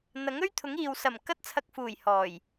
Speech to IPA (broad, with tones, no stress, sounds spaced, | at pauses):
n̪ ɐ˨˥ ŋ ɵ˥ ɥ t̪ʰ ʊ˨˥ ŋ iː˨ w s ɐ˨˩ m k ɐ˧ t̚ t͡sʰ ɐ˨ k̚ f uː˨˩ j h ɔː˨˩ j